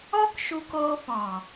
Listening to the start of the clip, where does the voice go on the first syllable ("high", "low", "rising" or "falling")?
high